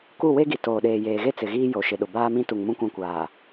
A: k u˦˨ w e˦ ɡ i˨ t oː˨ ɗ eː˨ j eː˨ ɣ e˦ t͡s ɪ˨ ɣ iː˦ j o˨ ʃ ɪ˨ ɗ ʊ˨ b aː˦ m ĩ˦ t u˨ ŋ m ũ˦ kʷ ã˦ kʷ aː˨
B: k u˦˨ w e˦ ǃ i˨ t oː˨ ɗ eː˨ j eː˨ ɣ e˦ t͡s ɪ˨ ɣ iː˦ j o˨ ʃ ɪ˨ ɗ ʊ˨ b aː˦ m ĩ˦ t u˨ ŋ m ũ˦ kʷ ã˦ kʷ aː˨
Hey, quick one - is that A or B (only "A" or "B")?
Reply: A